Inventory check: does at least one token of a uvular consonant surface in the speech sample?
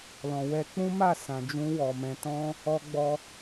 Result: no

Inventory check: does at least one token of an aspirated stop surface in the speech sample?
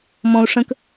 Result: no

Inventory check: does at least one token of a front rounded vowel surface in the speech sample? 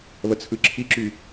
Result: yes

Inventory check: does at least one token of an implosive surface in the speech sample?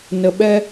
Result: yes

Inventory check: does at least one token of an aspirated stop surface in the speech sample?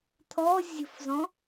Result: yes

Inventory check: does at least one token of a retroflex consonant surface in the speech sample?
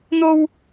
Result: no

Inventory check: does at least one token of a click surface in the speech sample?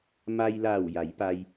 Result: no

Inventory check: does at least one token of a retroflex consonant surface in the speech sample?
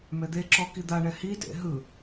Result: yes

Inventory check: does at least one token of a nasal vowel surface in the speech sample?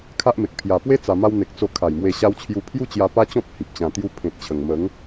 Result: yes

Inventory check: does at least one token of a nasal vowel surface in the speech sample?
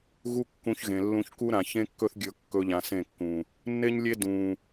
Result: yes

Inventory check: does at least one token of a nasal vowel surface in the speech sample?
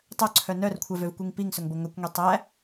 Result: no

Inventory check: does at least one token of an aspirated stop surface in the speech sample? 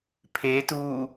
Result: yes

